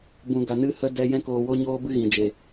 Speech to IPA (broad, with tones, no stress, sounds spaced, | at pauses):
b ũ˧ ɡ a˧ n ɨ˦ h ə˦ d ɛ˦ j ɛ̃˦ k oː˧ w o˦ ɲ oː˦ b ɨ˦ ɣ ĩ˨ d͡ʒ e˨